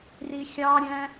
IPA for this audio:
rixʲɑɾʲæ̃

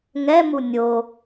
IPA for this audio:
ŋɛmu nʲo

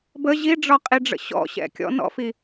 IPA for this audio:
bə ʑiɖ͡ʐɒqʼiɖ͡ʐə̰ ɕɔ̰ɕɛ̰ kʲɔ̰nɔ̰fi

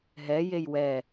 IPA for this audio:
ɦɛjej wɛ

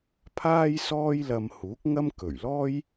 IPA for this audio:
pʰaː˥jsɔː˥jlɐ˧m huː˨˥k̚ŋɐ˥m kɵ˨˩ɥlɔː˥j

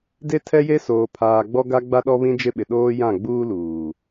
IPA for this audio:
de˦tʰɛ˦je˦ soː˨pʰaː˨ ɡ͡bɔ˦ɡa˦ɡ͡ba˦ɗɔ˦ βĩ˦d͡ʒɪ˦ɓɪ˨ ɗoː˦ jã˦˨ɡ͡buː˦luː˨

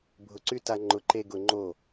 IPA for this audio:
bʱʊ˨ǀy˦ta˧ ŋ͡ǃʊ˨ǃe˧ɡʊ˨ ŋ͡ǃo˦˨

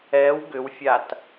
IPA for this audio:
ɛw ɡʏwfʲat

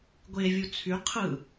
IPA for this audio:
ɡʷevʲu t͡sʰy qʰɯ

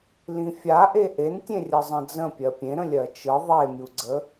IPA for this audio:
lĩfʲaʔe ʔentʲẽrʲɜ zˤə̃d͡zə̃pʲɜ pʲẽ ɾə̃lʲɜt͡ʃɯ ðˤemʲuɡ͡ǀə

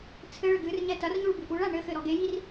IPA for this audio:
t͡sʰɘɭɘ ɡɨrɲɛ tɐrɲuɭ bɨʔuɭa ɳɘxɘ ɾɔɡejir

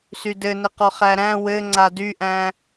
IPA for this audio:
sydɘnɘqɔ χæɾæ̃ wɘ ŋ͡ǀadyʔæ̃

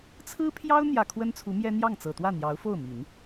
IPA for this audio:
t͡sʰɹ̩˥pʰjɑ˥ʊ̯ n̪jä˨˩ kʰwə˥nt͡sʰu˧˥mjɛ˥ n̪jɑ˥˩ŋt͡sɤ˨˩t̪wä˥˩ n̪jɑ˧˥ʊ̯fo˥˩ʊ̯mi˨˩˦n

